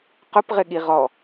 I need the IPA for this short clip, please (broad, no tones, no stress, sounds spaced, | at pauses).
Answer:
q ʊ p ʁ ɪ ɠ i ʁ ɔ